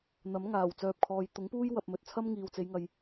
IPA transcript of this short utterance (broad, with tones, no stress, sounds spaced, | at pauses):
n̪ ɐ˨˥ m ŋ aː˨˩ w t͡s œː˨ p̚ kʰ ɔː˨ j t̪ ʊ˨˥ ŋ p uː˥ j w ɐ˧ p̚ m ɵ˨ t̚ t͡sʰ ɐ˥ m ŋ iː˨ w t͡s e˨˧ j ŋ ɐ˨ j